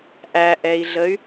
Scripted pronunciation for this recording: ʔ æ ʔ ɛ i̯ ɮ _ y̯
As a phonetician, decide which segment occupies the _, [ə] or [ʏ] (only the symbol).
ə